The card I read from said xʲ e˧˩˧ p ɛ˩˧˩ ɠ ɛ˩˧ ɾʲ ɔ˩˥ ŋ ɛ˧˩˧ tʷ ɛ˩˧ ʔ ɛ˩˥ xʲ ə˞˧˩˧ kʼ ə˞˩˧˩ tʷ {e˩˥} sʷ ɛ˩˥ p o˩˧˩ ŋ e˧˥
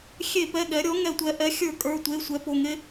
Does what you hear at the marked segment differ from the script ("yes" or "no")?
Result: yes